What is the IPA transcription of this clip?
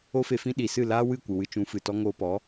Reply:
o˦ f e˧ f ĩ˦ ɗ i˨ s ɨ˦˨ l aː˦ w ɨ˦˨ kʷ ɨ˨ w ɨ˧ t͡ʃ ũ˨˦ f ɨ˨ t ɔ˦ ŋ oː˧ p ɔ˨˦

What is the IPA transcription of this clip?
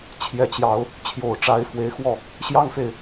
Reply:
t͡ɕʰ j ɛ˨˦ t͡ɕ j ɑ˨˦ ʊ̯ | t͡ɕʰ j o˨˩ ʊ̯ ʈ͡ʂ a˨˦ ɪ̯ f w e˨˦ ɪ̯ x w ɔ˥˨ | ɕ j ɑ˦ ŋ f e˨ ɪ̯

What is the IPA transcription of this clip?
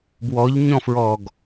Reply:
b w ɔ ʎ ɲ ɔ̃ f ɹ ɔ ɡ

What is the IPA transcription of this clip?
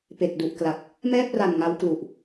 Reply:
p e˨˩ k̚ d u˨˩ ʔ k l a˨˩ k̚ | m ɛː˥˩ p̚ r a˨˩ n ŋ a˦˥ w k l u˨˩ ʔ

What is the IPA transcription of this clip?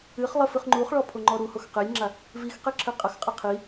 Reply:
ɨ χ lˠ ɘ f ɨ χ ŋ͡ǃ u χ ɭ ɔ pʰ o ŋ͡ǃ ɔ ɾ u h o x q e lʲ ŋ͡ǁ a | v i x q e ǁʰ ɘ qʼ ɐ x qʼ a qʰ i

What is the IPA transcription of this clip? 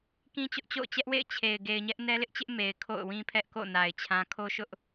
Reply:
k ĩ˦ t͡ɕ ʊ˦ ʔ t͡ɕ o̰˦˨ ʊ̯ t͡ɕ ɛ˦ ʔ w ḛ˦˨ ɪ̯ t͡ɕʰ e˨ ɪ̯ ɡ e˨ ɪ̯ ɲ ɛ˦ ʔ n ɛ˦ l ɪ˦ ʔ t͡ɕ ɪ˦ ʔ m e˨ ɪ̯ kʰ o̰˦˨ ʊ̯ w ĩ˦ pʰ ɛ˦ ʔ k o̰˦˨ n a˨ ɪ̯ t͡ɕʰ ã˦ kʰ o˦ ʃ ʊ˦ ʔ

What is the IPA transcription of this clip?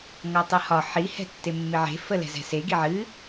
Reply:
ŋ ɔ tˤ ɨ h ɒ ħ i h ɛ̤ tː e mː ɪ ʕ e̤ f ə l ɛ̤ z ɛ̤ s e ɡ i ʕ ɨ

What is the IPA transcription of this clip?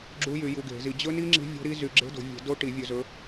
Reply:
ɡ͡ǁ u˦˥ j y˨˩˦ j u˨˦ ɡ e̤˨˩˦ z i˨˦ d͡ʑ ɵ˦˥ n i˦˥ ŋ͡ǁ i̤˦˥ vʲ o̤˦˥ ɾ i˦˥ z y˨˦ ɡ͡ǁ e̤˦˥ d o̤˨˩˦ vʲ e̤˨˩˦ d o˦˥ ʈ i˨˩˦ vʲ ɵ˨˦ z ɵ˨˦

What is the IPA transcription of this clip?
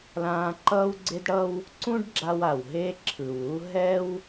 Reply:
l ãː˧ ǃ ʌː˥ w ɡ͡ǀ e˥ d ɽ ʌ˥ w | ǀ ũ˥ ɖ ɡ͡ǁ a˧ w a˩ w ɦ e˥ ǁʰ ɯ˩ w u˥ ɦ ɛ˥ w

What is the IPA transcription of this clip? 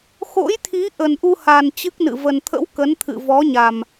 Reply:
x o̰˧˥ j t̪ʰ i˨˦ ʔ ə˨˩ n ʔ u˧ h a˨˩ n t͡ɕ ɨ˦˥ k̚ n ɨ̰˧˨ v ə˨˩ n t̪ʰ ə̰˧˥ w k ə˨˦ n t̪ʰ ɨ̰˧˨ v ɔ˨˦ ɲ a˨˩ m

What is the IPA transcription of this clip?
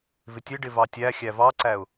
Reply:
v ɪ tʲ ɪ ɖ ɪ v ɑ tʲ æ xʲ æ v ɑ ǀ æ ʊ̯

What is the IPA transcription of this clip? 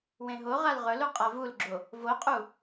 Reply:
w ẽ ɦ o ʁ a l ʁ ɵ l u qʼ a v u l ɡ͡ǁ o | v o qʼ u

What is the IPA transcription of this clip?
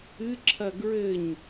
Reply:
ɨ ǁʰ ɐ ɡ ɹ ɘ ɲ

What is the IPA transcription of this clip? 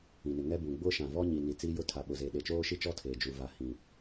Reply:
ĩ˨ n ɪ˨ ŋ ɛ˦ b ũ˨ ɡ͡b ʊ˦ ʃ ã˨ v ɔ˦ ɲ i˨ n i˨ t͡s i˦ j ʊ˦˨ tʰ a˨ ɓ ʊ˨ z e˨ ɗ e˨ t͡ʃ oː˦ ʃ i˦˨ t͡ʃ ɔ˦ tʰ eː˨ d͡ʒ u˨ v a˨ h ĩ˨

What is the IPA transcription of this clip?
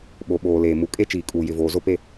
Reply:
ɓ o˨ ɓ oː˨ l eː˨ m u˨ kʼ e˦ t͡ʃ iː˨ kʼ uː˨ j ɪ˨ v oː˨ z o˦ p e˦˨

